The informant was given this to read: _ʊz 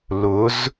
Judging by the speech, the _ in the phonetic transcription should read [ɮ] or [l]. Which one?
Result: l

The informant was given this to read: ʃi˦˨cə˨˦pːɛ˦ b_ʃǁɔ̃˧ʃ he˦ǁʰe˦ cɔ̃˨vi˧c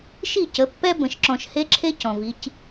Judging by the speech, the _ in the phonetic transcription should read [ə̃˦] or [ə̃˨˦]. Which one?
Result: ə̃˨˦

